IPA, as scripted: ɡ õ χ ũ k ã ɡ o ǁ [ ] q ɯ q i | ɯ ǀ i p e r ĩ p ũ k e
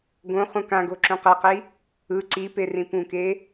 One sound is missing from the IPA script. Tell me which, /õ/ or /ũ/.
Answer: ũ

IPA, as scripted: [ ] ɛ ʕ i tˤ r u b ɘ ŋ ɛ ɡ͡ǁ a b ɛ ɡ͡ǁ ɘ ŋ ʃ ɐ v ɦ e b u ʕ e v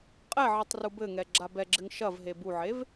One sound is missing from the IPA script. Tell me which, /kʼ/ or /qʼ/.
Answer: qʼ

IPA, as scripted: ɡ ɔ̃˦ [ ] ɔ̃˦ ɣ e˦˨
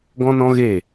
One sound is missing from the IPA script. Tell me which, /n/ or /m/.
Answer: n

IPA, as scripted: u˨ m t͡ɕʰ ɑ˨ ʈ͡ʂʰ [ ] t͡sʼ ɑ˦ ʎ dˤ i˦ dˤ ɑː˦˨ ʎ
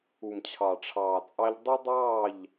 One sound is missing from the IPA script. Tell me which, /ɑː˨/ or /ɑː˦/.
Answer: ɑː˨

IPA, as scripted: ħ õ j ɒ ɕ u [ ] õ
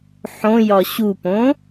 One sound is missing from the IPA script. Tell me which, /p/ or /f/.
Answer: p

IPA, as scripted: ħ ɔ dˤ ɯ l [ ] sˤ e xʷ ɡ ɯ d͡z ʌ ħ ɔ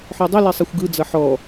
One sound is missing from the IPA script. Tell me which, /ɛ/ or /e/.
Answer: e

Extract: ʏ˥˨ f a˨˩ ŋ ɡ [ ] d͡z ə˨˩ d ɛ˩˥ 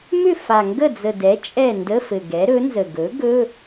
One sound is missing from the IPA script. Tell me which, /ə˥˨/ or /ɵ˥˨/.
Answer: ə˥˨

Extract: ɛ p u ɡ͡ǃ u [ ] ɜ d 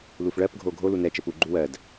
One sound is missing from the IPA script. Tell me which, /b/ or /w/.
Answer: w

